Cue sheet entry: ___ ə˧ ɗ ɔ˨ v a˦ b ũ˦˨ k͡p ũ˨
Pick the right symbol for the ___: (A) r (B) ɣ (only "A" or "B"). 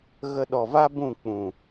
B